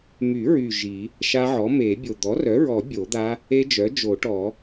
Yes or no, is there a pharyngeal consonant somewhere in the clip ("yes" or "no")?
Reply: yes